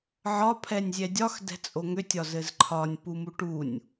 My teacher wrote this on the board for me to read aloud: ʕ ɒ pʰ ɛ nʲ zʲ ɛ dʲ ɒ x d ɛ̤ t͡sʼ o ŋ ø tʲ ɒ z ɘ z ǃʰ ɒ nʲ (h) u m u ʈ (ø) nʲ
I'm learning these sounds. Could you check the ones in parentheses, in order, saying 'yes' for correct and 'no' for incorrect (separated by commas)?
no, no